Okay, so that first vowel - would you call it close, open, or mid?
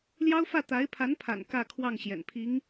open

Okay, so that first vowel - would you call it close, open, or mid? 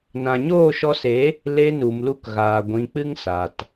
open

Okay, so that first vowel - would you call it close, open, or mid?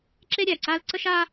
mid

